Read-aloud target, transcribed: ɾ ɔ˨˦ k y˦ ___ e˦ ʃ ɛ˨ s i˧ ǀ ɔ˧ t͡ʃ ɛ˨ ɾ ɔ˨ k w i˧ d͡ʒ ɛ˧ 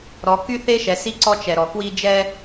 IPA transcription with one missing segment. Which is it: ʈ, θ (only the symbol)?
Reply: θ